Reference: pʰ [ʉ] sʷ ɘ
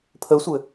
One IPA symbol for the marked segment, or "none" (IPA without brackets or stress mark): ə